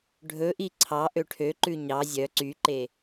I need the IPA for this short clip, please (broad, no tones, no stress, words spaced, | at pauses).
ɖʱɵʔi ǀʰɑʔø ʈʰøǃʉ ɲɑ zʲœ ǀyǃe